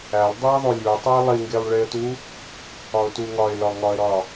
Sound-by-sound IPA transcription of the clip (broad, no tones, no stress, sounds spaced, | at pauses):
æ lˠ dˤ i ə̯ ðˤ o lʲ u ə̯ tˤ u ɪ̯ lˠ i ŋ ɡ e lˠ ɭ e ə̯ t u | ɒ ʊ̯ t u ŋ ɒ ɪ̯ l ɒ ŋ ɒ ə̯ ɾ ɒ